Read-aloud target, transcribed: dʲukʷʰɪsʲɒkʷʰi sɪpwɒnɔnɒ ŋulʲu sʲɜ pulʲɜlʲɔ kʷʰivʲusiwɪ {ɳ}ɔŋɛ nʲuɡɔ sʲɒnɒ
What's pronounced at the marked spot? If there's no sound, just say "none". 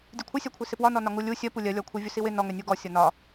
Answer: n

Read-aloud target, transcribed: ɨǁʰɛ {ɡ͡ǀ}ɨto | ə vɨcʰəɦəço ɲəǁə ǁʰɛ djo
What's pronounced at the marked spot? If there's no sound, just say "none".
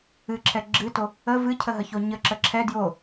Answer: ɡ͡ǁ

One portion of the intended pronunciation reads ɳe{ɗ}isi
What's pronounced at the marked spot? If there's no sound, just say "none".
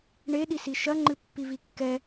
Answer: ɗ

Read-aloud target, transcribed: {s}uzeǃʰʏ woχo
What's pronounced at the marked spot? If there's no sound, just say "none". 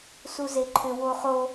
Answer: s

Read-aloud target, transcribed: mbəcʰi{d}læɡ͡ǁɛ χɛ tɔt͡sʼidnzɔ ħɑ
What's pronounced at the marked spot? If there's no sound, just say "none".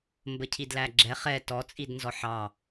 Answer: d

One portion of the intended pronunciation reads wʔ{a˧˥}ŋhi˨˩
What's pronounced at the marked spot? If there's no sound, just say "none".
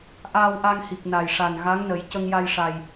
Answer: a˧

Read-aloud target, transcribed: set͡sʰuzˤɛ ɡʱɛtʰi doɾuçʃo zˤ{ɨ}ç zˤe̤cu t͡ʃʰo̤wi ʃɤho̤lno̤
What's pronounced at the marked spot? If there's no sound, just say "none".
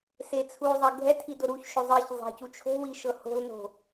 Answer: i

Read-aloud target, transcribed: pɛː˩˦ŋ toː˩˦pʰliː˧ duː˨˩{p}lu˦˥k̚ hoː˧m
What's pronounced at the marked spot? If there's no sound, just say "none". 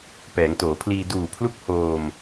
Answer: pʰ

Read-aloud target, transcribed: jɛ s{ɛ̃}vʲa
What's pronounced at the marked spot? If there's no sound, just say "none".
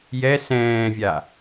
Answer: ɛ̃ː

